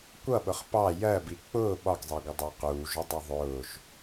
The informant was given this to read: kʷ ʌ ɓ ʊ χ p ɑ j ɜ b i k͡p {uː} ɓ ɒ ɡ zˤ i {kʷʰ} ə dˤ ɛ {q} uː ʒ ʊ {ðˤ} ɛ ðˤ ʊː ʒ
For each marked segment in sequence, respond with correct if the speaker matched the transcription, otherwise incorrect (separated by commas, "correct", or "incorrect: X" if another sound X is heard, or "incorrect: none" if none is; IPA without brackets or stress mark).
incorrect: ʊː, incorrect: ɡʷ, correct, incorrect: dˤ